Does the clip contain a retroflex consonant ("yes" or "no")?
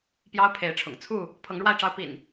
yes